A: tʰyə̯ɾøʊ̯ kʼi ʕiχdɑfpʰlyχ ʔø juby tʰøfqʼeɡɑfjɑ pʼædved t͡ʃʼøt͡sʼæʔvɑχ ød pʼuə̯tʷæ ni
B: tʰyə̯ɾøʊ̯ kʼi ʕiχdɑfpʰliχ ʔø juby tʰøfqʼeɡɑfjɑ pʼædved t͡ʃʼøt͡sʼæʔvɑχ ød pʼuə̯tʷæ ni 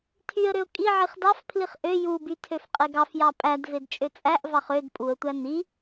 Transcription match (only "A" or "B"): B